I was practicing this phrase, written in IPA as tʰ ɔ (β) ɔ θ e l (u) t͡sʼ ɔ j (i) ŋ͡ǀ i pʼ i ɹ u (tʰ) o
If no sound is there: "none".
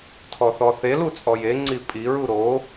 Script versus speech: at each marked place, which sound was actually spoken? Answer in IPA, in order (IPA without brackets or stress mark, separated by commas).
θ, u, e, ɾ